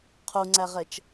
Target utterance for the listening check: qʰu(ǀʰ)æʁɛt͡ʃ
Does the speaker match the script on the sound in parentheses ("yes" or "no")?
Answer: no